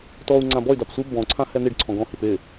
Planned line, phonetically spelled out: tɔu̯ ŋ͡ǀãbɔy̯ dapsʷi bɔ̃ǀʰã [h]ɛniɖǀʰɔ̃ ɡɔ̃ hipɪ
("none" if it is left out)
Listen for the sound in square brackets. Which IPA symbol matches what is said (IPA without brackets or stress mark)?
h